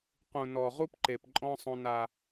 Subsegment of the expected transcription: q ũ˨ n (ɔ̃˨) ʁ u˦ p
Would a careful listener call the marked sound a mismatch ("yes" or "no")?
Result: yes